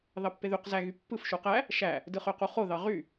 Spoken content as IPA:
ð ɑ pː e ð y q z æ ɣ y pː ɯ f ʃ u q æ | ʃ æ | d ɯ χ ø q u χ o ð ɑ ʁ y

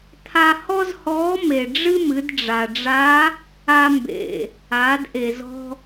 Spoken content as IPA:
t̪ʰ a˧ h ɔ˥ z h ɔː˧˥ m e˩ ɖ͡ʐ ɨ˥ m ɨ˩˧ d ɖ͡ʐ a˩ ɖ͡ʐ a˧˥ | a˧ m b ḛ˩ | aː˩˧ d ʔ e˩ z ɔ̤˧

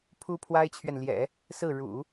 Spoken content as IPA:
pʰ u˥ pʰ w a˥ ɪ̯ t͡ɕʰ ɥ ɛ˨ n l j ɛ̰˨˩˦ | s ɹ̩˥˩ ɻ ṵ˨˩˦

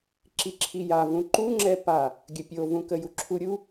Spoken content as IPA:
ǁ i ǁʰ i j a v ũ ǃ u ŋ͡ǁ ɛ p a | ɡʲ ə pʲ o v ũ k ə j u ǁʰ u ɾʲ u

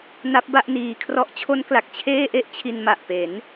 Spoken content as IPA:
n a˦˥ p̚ b a˥˩ ʔ n iː˧ kʰ r ɔ˥˩ ʔ t͡ɕʰ o˦˥ n k l a˨˩ k̚ t͡ɕʰ eː˥˩ ʔ e˥˩ ʔ t͡ɕʰ i˧ n m a˨˩ ʔ p e˩˦ n

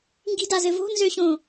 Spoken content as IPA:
ŋ ɡ i̤ d a z ɘ v o̤ n z ø ɕ õ

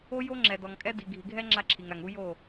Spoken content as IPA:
o˦ j o˦ ŋ͡ǁ ɛ˨ d ɔ˨ ŋ kʼ ɛ˦ d i˨ ɡʱ i˨ ɡʱ ɛ˦ ŋ͡ǁ a˦ ǁʰ i˨ ŋ ɾ a˨ ŋ u˦ j o˦˨

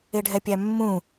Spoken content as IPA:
e ɖʱ ɛ pʲ æ mː ũ

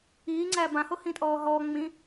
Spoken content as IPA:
iː ŋ͡ǀ æ b ã h o h ĩ tʼ ɔː ɦ ɔː ŋ͡m ĩ

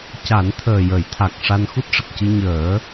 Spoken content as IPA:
c a˨˩˦ n t̪ʰ əː˨˩ j ə˨˩˦ j t̪ʰ a˨˩ k̚ ʂ a˧ n x u˦˥ t̚ ʂ ə˨˩ k̚ c ɨ˧ ɲ əː˨˩˦

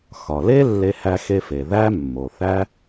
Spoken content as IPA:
x ɒ˩ l e˥ lː e˧ h æ˧ x e˧ f e˩ ð æ˧ mː o˩ θ æ˧

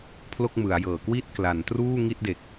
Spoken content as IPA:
pʰ l o˥˩ k̚ m ɯ˩˦ a̯ j ɤː˨˩ k w i˥˩ t̚ k l a˩˦ n t r uː˥˩ ŋ i˥˩ t̚ d e˨˩ k̚

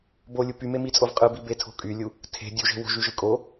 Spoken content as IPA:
b o lʲ u p y m e m i t͡sʼ o v qʼ ɯ b i b e tʰ o̤ kʼ y lʲ u | tʰ e̤ dʲ u ʒ e̤ w o̤ ʒ y ʒ ɯ kʼ o

